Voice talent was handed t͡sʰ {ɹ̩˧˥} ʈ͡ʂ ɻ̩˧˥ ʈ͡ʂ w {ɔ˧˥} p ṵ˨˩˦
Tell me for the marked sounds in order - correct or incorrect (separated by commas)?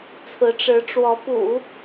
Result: correct, correct